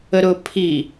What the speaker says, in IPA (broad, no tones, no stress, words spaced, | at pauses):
əɾʊpʰi